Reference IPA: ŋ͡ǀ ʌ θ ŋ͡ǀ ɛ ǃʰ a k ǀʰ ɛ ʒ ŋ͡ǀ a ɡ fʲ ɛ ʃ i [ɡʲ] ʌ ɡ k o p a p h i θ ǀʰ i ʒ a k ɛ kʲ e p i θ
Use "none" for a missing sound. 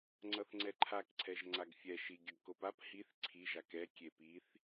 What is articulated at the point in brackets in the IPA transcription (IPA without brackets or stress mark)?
ɡʲ